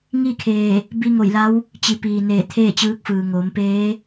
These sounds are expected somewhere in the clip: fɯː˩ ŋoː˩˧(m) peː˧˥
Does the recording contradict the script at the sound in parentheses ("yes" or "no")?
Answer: no